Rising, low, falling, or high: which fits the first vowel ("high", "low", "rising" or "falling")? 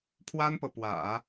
high